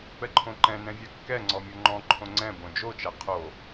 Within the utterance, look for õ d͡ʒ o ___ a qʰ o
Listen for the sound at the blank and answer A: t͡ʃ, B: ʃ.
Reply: A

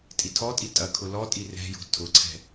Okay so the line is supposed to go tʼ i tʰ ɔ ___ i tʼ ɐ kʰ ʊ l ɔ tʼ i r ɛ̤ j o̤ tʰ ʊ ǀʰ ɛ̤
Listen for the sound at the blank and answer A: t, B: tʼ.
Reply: B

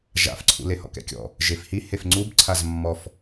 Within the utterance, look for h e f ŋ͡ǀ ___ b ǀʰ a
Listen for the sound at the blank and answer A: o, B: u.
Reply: B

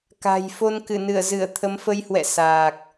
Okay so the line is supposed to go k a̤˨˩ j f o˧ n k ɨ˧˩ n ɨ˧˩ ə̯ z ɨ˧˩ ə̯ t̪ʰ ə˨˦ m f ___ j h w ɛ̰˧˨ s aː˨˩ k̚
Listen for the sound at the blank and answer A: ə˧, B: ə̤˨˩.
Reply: A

